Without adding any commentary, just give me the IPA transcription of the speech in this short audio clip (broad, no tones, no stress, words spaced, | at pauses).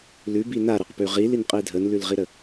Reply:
lʉbi naɾɛqpʉ ʁilinqʼi dʱənlʉlʁiɾə